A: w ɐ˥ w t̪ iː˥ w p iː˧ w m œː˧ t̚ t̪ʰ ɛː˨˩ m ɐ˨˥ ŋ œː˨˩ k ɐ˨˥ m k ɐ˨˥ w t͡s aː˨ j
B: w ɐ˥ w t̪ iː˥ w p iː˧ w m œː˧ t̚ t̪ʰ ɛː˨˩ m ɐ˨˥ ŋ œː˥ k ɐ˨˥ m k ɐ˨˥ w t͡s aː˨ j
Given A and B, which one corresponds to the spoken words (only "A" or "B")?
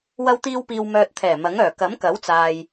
A